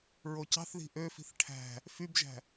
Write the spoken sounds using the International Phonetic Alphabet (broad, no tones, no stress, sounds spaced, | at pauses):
ɹ o c ɑ̤ θ ð i̤ ʔ ø f i̤ θ ʈʰ æ̤ | f y b ʒ æ̤